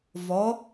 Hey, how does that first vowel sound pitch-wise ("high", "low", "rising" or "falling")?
rising